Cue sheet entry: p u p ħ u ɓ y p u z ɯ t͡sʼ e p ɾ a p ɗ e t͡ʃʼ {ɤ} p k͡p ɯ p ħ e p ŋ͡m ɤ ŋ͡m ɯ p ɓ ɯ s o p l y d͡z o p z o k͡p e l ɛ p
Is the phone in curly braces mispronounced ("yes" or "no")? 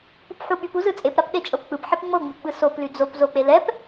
no